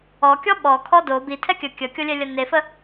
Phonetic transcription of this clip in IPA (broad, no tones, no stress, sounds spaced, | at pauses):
ɔ kʲ ɔ ɓ ɔ kʰ ɔ d o b i tʰ ɛ kʲ ə kʲ ə kʲ o lʲ ɛ lʲ ɐ n e f ə